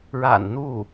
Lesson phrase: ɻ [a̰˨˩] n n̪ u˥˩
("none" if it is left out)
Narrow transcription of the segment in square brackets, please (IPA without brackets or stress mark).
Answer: a̰˨˩